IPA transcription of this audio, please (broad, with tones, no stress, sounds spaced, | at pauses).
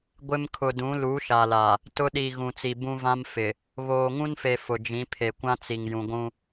ɡʷ ɪ˦ m kʰ ʊ˨ d ũ˨˦ l u˨˦ ʃ a˨ l a˨ | t ʊ˦ ɗ i˨ ɣ ũ˨ t͡s i˨ b ũ˦ v ã˦ m f ɪ˨ | β oː˨ ŋ ũ˦ n f e˨ f ʊ˨ d͡ʒ ĩ˨˦ pʰ e˨ kʷ ã˦ t͡s i˨ ŋ j ũ˨ ɡʷ ũ˦